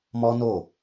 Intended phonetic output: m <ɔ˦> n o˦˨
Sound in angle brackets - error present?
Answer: no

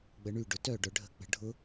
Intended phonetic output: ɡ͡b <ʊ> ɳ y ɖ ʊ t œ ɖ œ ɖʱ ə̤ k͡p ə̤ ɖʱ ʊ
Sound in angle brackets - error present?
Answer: yes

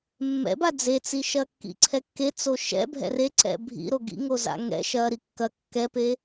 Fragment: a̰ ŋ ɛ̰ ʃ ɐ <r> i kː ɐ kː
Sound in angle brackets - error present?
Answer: yes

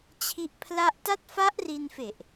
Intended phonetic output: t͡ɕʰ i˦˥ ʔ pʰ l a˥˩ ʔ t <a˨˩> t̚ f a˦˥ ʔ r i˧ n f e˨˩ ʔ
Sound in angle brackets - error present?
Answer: yes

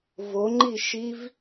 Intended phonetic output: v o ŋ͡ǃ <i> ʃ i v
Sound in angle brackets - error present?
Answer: no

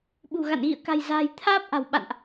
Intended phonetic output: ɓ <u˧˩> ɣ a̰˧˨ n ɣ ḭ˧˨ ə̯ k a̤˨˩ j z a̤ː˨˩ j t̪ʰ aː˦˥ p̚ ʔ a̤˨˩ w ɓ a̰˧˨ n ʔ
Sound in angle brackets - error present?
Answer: yes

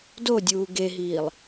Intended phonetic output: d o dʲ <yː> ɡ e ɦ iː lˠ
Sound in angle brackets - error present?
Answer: yes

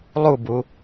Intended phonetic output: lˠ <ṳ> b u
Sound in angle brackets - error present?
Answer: yes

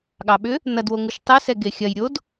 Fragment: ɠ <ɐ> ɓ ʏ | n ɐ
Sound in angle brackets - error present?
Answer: yes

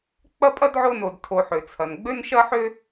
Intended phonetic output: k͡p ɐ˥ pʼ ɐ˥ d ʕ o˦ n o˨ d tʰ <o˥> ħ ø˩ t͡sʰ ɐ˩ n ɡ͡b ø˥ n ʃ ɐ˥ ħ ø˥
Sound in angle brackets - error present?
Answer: yes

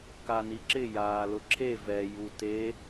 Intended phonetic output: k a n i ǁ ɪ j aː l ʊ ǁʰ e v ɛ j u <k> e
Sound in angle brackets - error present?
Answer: yes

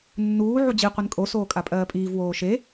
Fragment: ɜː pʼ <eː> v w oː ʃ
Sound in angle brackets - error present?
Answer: yes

